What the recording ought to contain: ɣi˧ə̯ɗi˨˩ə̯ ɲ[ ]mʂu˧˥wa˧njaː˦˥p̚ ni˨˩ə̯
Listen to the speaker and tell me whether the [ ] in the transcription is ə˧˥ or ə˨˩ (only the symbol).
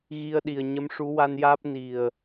ə˧˥